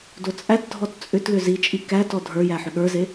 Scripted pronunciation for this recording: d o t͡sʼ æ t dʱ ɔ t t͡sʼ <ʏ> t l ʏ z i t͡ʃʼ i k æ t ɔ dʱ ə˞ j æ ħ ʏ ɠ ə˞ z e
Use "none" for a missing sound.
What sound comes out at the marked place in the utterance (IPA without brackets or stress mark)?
ʏ